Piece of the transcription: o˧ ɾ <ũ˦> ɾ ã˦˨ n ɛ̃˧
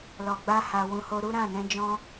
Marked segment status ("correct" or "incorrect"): incorrect